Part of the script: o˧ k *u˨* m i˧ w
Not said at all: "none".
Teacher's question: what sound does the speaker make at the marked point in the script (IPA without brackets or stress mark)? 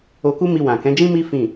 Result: u˦